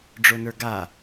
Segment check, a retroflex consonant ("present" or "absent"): present